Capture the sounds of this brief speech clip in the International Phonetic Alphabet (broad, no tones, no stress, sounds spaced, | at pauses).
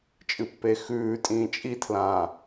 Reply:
t͡ʃʼ ɨ pː e x ʉː tʼ ĩː t͡ʃʼ i tʰ l ãː